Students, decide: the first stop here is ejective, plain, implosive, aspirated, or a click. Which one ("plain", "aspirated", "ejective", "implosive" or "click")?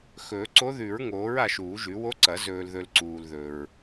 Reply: click